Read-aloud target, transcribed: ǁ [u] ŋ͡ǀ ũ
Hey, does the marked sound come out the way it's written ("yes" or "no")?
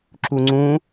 yes